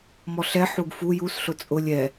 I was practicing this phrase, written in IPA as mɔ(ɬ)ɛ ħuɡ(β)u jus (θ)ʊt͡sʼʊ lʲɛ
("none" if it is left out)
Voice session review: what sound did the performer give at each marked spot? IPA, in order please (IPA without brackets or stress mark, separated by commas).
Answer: ɬ, f, ɬ